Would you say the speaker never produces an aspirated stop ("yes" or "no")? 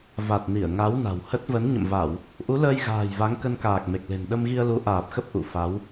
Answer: yes